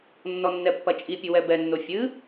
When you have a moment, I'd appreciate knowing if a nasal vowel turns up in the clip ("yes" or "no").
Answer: no